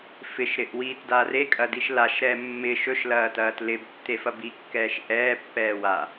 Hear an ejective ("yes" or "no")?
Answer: yes